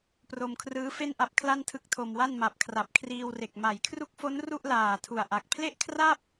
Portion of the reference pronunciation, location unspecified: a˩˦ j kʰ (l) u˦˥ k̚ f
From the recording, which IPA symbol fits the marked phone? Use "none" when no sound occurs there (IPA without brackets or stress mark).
r